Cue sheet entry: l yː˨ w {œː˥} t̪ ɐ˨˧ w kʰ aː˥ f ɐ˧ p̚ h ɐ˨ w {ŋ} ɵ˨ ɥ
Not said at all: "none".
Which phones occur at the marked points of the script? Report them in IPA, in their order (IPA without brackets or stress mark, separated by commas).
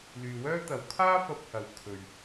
œː˥, kʰ